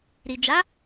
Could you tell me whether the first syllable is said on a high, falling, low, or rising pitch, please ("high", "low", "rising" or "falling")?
low